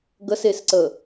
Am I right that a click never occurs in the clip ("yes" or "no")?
no